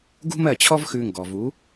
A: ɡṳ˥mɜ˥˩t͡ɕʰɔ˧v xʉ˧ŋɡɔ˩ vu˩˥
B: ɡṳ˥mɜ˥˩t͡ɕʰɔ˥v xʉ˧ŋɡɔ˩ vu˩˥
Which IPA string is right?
B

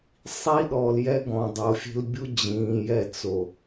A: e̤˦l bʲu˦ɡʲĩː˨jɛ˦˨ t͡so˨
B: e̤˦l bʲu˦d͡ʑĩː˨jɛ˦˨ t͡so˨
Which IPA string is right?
B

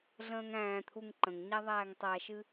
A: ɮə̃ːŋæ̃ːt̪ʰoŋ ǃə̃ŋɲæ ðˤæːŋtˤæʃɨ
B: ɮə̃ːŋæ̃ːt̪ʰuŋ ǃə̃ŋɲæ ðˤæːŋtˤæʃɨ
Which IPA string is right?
B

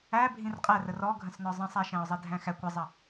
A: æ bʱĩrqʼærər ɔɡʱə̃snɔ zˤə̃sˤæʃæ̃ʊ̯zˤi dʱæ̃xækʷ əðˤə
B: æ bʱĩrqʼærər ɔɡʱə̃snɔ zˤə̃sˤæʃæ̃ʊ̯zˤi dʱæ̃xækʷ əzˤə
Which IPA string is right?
B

